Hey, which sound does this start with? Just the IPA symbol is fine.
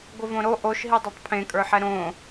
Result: ɡʷ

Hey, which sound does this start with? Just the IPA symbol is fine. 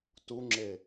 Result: t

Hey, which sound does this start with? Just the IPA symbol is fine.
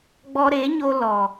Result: ɡ͡b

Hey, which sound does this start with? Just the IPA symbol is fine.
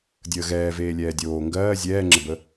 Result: dʲ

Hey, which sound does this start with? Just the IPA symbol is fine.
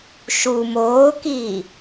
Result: ʃ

